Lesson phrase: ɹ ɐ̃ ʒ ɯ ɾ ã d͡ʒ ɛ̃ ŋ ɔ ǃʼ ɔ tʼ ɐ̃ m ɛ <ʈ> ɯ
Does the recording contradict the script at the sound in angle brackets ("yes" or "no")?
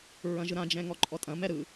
yes